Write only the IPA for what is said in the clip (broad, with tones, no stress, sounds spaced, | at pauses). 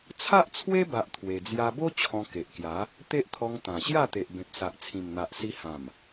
t͡sʰ a˦ ʔ t͡sʰ w e˦ b a˦ ʔ t̪ʰ w e˧ d͡z j a˧ b o˦ t͡ɕʰ ɔ̃˧ k e˨ ʔ k j a˨˦ | t̪ e˦ ʔ t̪ʰ ɔ˧ ŋ t̪ ã˨˩ ɕ j a˥˧ t̪ e˨ ʔ b ẽ˨ p̚ s a˨ ʔ t͡sʰ ĩ˨˩ m n̪ a˨ ʔ s i˧ h ã˨˩ m